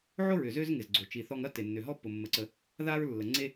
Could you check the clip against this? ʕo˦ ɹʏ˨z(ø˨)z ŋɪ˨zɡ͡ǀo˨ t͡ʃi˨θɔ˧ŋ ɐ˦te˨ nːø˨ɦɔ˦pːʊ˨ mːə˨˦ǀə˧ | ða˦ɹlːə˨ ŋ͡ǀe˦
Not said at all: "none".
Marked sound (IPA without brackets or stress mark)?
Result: ø˦